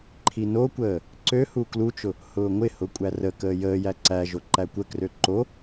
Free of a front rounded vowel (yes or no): no